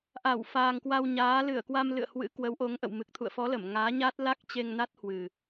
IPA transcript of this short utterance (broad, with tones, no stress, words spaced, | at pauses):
ʔa˧˩w faː˨˩ŋkwa˧wɲaː˨˦ lɨ˧˩ə̯kwa˧mlɨ̰˧˨ə̯ hwɨ̰˧˥kwə˨˦w ʔo˨˦ŋʔə̰˧˨wmɨ˨˩k̚ t̪ʰṵ˧˨ə̯fɔ˨˦lə˧˩m ŋaː˨˦ɲa˦˥t̚ la˦˥k̚ t͡ɕe˧ŋna˦˥t̚hwɨ˨˩